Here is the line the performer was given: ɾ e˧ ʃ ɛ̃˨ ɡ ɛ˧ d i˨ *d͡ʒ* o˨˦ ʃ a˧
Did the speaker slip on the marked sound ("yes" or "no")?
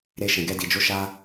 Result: no